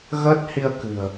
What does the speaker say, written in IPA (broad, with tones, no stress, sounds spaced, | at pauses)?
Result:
ɣ əː˦˥ t̚ h i˧ ə̯ k ɨ̤˨˩ ə̯